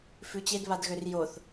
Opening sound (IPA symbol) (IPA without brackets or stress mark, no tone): f